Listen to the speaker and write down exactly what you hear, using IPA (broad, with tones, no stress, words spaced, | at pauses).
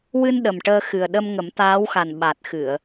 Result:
wɨ˧n ɗə˨˩mʈəː˧xɨ˨˩ə̯ ɗə˧m ŋə˨˩˦mt̪aː˧˥wxa˨˩n ɓa˨˩t̚xɨ˨˩˨ə̯